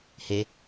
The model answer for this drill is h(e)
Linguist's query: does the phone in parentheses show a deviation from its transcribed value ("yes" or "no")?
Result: no